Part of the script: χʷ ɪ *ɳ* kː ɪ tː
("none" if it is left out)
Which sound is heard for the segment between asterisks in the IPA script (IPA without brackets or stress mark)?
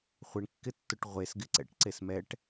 ɳ